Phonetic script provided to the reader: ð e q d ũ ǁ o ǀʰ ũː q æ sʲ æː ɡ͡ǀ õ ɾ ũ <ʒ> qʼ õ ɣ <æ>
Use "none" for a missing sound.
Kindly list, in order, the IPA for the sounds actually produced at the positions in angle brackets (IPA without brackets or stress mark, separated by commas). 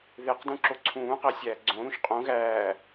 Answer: ʃ, æː